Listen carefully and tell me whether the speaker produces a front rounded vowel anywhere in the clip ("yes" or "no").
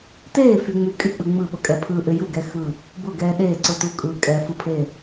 yes